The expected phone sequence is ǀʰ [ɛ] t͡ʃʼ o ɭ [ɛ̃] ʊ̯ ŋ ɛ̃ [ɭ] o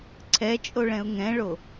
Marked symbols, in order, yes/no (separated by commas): yes, yes, yes